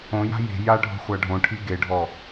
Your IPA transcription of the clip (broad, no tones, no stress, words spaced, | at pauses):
õja̤ je̤ jaɖʱo̤ χʷaɖʱõʈʰi ɡeɖʱɔ